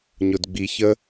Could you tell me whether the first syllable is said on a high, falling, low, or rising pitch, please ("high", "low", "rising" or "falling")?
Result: low